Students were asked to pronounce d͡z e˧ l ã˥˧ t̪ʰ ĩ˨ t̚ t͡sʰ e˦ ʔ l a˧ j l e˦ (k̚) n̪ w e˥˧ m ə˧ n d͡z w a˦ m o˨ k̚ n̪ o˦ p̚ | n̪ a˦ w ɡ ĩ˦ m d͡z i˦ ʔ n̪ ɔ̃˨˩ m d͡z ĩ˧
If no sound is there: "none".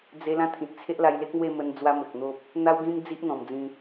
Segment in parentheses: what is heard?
k̚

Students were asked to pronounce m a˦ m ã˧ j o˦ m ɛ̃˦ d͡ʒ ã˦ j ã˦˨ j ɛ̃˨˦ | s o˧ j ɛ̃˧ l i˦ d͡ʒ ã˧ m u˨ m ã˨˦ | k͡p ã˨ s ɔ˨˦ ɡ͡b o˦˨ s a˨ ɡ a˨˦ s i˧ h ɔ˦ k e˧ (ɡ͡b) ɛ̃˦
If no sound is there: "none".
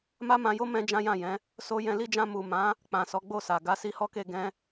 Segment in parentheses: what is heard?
ɡ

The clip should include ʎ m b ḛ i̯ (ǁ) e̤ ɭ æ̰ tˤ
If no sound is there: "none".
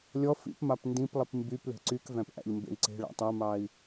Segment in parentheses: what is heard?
ǀ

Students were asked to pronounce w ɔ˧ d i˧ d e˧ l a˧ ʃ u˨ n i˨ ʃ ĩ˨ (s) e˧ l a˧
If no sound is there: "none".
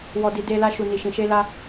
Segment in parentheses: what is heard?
ʃ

